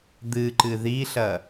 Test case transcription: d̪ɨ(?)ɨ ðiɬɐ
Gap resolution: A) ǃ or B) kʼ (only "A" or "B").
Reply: A